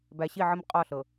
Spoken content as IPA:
b æ˨ ɕ i˦˨ ʕ ə˦ m qʼ ɒ˦˨ ɬ ɤ˨

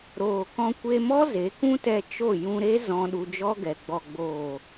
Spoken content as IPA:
ɾ oː˨ k ɔ̃˧ kʷ e˧ m ɔ˦ z e˨˦ k ũ˦ t ɛ˧ t͡ʃ o˦˨ j ũ˧ ɾ e˦ z ɔ̃˧ ɗ u˧ d͡ʒ ɔ˦ ɡ ɛ˨ ɡ͡b ɔ˨ ɡ͡b oː˨

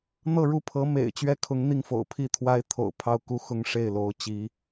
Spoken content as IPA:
n̪ ɤ˥˧ ɻ u˥˩ pʰ ɤ˧˥ m ḛ˨˩ ɪ̯ t͡ɕ ɥ ɛ˥˩ kʰ ʊ˧˥ ŋ n̪ i˥˩ ŋ f o̰˨˩ ʊ̯ pʰ i˥˩ t̪ʰ w a˥ ɪ̯ t̪ʰ o̰˨˩ ʊ̯ pʰ ɑ˥˧ ʊ̯ k u˥˩ x ʊ˥ ŋ ʂ e˥˩ ɪ̯ l o˧˥ ʊ̯ t͡ɕ i˧˥

